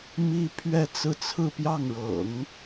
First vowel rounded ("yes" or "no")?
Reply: no